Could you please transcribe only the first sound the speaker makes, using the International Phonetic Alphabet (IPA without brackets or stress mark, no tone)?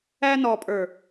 æ